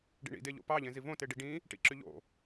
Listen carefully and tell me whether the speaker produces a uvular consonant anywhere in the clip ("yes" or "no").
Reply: no